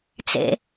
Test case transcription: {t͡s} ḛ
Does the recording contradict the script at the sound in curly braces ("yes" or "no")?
no